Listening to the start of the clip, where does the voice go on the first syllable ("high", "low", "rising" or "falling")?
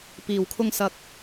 low